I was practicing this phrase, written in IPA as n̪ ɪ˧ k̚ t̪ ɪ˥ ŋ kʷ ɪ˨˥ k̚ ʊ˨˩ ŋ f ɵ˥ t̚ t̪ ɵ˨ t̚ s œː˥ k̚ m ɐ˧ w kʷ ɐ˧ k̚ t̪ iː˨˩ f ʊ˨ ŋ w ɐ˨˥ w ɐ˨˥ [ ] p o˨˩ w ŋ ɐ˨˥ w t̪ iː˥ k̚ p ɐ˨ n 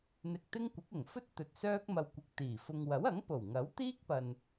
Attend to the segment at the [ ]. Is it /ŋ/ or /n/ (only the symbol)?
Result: ŋ